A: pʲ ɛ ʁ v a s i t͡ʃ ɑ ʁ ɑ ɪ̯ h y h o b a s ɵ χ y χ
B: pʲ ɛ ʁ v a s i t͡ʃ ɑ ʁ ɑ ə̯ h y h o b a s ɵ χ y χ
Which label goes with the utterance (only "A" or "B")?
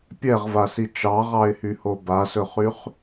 A